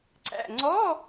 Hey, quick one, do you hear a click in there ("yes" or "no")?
yes